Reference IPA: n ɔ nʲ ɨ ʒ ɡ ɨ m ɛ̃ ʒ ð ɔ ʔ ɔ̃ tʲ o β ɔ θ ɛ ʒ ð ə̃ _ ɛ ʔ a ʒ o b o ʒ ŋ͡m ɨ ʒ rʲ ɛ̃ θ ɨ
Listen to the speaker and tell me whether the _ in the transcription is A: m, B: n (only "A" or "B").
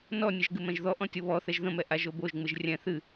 A